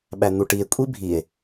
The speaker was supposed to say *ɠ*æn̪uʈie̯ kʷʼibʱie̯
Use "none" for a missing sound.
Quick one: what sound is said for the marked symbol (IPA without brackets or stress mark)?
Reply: ɓ